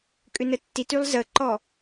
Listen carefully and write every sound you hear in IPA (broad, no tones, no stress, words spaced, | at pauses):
kʼʏnətːitylˠ zəǃɔ